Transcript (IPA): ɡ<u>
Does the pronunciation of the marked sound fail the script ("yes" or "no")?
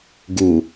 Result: no